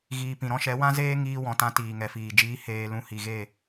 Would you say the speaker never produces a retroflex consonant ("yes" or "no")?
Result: yes